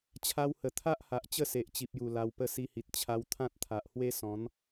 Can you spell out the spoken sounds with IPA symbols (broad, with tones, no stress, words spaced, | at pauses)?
t͡ɕʰa˧whə˨˩ t̪ʰa˦ʔha˨ʔ t͡ɕə˥˧se˨ʔt͡ɕi˨p̚ju˨˩ la˧wpə˥˧ si˧hi˨t̚ t͡ɕʰa˧wt̪ʰã˦t̚t̪ʰa˨ʔhwe˦ sɔ̃˨˦n